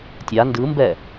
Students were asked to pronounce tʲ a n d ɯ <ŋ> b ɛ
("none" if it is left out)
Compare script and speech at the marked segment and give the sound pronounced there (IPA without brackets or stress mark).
m